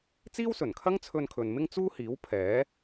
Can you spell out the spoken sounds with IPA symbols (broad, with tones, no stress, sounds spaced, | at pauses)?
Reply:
t͡s iː˥ w s ɵ˨˩ n kʰ ɐ˥ ŋ t͡sʰ ɵ˧ n kʰ ɵ˨ n m ɪ˥ ŋ t͡s uː˥ h iː˨˥ w pʰ ɛː˨˥